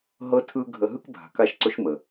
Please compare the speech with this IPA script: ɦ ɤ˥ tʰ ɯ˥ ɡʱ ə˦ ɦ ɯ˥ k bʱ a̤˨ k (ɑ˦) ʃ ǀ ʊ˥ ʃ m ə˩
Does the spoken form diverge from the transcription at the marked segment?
yes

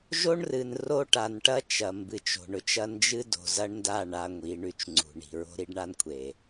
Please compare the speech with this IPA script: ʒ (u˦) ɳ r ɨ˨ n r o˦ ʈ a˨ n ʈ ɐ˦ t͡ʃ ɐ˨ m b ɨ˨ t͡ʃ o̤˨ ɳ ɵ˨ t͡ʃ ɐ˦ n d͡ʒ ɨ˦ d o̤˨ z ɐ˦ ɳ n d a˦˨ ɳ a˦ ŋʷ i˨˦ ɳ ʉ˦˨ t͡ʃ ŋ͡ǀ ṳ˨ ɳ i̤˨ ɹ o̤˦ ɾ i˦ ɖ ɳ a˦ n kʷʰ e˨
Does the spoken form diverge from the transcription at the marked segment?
yes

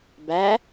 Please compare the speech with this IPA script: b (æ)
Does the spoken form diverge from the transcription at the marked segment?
no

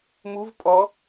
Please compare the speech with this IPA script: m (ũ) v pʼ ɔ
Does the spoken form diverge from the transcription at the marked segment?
yes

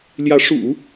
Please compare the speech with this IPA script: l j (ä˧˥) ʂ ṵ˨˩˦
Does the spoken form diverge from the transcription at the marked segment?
no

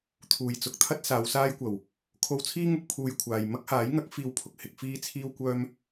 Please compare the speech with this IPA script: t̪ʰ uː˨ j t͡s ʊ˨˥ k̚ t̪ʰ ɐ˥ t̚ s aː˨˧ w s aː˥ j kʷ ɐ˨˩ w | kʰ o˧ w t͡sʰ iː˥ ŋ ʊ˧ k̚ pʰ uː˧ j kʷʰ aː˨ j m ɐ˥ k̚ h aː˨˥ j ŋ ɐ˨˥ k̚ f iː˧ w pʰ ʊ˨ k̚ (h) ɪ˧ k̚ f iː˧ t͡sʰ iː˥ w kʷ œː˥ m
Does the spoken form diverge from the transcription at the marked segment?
no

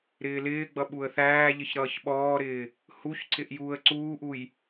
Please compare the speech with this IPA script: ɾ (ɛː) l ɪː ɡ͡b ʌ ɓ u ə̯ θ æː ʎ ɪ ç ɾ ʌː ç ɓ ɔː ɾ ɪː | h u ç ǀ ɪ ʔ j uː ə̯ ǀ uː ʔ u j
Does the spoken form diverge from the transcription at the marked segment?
yes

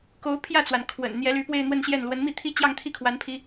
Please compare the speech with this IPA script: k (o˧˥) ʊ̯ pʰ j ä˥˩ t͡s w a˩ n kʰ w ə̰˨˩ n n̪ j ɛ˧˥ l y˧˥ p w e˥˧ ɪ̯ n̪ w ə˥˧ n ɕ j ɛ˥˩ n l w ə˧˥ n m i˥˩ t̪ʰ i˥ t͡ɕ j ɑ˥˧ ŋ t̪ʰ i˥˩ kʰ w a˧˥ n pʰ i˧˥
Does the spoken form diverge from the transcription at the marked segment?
no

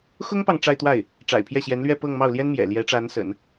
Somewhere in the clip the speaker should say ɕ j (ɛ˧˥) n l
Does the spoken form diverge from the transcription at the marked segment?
no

